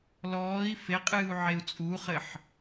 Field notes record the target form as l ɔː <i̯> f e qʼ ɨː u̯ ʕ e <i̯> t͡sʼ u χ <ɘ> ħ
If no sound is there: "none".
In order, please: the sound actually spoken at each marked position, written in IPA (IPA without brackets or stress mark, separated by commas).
i̯, u̯, ɘ